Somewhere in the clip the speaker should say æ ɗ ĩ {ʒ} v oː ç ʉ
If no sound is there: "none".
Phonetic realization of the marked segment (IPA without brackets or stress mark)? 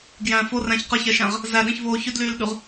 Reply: ç